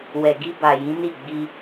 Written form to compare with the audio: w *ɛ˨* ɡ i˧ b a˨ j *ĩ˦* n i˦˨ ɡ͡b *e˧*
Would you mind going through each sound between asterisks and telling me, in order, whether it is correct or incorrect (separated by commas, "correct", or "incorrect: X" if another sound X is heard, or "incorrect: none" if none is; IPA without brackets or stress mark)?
correct, incorrect: ĩ˨˦, incorrect: i˧